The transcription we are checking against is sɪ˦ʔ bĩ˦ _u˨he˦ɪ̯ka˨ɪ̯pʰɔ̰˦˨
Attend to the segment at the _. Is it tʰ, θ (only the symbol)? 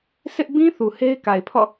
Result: θ